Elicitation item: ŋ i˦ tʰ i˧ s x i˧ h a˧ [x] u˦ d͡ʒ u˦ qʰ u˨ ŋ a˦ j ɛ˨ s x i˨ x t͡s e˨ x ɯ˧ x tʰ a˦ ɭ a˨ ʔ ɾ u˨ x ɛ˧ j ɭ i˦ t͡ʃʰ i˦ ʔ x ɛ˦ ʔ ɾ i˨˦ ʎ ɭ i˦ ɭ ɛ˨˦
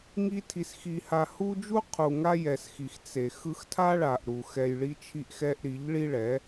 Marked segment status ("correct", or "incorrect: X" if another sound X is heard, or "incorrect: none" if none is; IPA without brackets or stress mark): incorrect: h